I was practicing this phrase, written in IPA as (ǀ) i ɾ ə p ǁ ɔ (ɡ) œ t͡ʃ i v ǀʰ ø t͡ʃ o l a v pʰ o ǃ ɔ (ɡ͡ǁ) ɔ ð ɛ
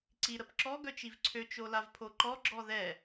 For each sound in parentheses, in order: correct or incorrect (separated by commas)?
correct, correct, correct